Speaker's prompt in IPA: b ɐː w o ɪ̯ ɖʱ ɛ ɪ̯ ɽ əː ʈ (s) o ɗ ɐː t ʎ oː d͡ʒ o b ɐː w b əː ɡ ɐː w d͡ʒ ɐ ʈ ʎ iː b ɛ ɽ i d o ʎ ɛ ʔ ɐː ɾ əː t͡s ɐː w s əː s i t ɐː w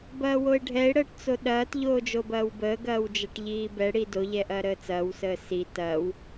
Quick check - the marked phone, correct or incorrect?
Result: incorrect: t͡s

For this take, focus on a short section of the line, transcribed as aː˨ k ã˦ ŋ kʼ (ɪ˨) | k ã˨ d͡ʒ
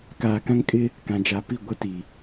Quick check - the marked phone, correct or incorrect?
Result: incorrect: ɪ˦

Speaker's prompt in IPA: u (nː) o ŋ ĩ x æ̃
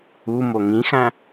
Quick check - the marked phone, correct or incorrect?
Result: incorrect: m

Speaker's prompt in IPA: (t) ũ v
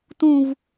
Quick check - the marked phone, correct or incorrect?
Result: correct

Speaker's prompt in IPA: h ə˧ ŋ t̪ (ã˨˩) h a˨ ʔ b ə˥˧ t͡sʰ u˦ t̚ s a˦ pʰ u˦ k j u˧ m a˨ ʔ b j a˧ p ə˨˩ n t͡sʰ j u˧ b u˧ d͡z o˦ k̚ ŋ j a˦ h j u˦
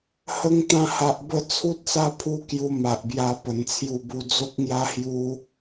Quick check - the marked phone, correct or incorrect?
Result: incorrect: ã˧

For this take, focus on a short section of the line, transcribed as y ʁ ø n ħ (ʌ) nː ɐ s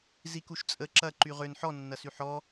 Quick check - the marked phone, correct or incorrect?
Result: incorrect: ɔ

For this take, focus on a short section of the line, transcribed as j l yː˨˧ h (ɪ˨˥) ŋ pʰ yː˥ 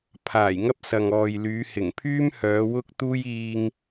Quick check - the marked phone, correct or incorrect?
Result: incorrect: ɪ˨˩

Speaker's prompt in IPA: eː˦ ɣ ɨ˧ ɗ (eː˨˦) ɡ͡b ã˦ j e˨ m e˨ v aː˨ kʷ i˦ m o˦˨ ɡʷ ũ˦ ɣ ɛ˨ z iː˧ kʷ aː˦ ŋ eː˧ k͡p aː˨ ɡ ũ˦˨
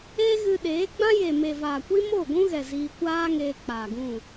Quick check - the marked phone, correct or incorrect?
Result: correct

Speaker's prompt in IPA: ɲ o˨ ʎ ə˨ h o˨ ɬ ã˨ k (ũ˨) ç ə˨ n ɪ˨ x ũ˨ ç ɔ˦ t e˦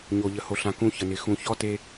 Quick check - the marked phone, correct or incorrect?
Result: correct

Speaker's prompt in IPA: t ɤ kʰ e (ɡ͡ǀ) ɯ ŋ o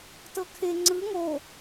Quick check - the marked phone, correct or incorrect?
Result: incorrect: ŋ͡ǀ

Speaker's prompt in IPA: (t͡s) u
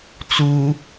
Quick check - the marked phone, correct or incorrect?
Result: correct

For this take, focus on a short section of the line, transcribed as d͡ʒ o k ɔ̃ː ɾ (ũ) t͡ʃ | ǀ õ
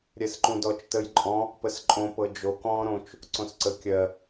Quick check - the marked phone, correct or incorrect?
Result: incorrect: õ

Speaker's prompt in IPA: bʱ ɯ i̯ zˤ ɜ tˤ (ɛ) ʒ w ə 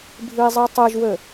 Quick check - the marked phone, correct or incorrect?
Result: correct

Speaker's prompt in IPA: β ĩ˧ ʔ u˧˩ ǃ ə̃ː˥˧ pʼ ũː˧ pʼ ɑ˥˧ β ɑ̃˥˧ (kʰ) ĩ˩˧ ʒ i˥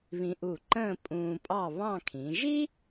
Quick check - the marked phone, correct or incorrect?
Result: correct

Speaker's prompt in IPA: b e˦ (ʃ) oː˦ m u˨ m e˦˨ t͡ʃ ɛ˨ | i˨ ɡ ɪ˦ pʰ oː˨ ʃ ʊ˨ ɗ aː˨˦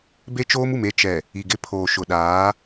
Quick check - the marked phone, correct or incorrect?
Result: incorrect: t͡ʃ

